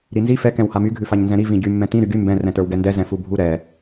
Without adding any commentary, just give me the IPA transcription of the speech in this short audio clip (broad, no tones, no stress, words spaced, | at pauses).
ɾinzi fɛ kɛ̃whamy ɡʱʉfaɲnzɛ̃ɾi vĩɟy mːɛ̃tĩ ɾyɡy mbɛ̃ rɛ̃tə˞wɡɛndɛ zɛ̃fubʱu ɾɛ